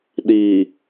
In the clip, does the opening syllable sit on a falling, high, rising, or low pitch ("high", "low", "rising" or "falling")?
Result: low